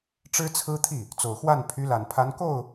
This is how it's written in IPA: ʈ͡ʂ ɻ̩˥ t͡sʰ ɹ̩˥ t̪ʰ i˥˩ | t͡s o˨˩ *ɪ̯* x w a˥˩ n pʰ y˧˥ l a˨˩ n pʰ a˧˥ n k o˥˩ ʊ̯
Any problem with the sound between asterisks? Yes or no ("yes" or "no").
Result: yes